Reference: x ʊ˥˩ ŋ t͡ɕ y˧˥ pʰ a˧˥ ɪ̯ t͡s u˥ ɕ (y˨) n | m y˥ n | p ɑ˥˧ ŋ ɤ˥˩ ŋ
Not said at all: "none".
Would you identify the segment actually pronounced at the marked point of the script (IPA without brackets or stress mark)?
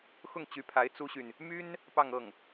y˨